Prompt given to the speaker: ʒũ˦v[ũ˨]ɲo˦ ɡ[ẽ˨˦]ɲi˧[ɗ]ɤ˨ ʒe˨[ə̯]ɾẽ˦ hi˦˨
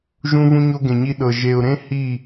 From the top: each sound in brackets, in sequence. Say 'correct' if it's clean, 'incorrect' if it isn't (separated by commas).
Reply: incorrect, incorrect, correct, incorrect